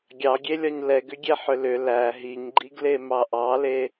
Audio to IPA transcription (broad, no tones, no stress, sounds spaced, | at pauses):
ɡʲ ɑ ɡʲ e lʲ ɒ ɲ l ɛ ɡ ʏ ɡʲ e ħ ʏ l ʏ l æ ɦ i ɲ ɡ͡ǃ i ɡ l e m ɑ ʔ ɑ l e